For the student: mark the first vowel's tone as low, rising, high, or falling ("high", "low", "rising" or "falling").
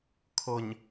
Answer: low